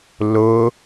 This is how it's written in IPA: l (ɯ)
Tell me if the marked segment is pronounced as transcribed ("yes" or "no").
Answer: no